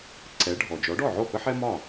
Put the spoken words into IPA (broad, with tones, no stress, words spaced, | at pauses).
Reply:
ǀɛ˩˥ɖʱɔ˩ d͡ʒɔ˩˥ɖɔ˥˩ʕo˥˩ pə˥ħɛ˥ mɒ˥˩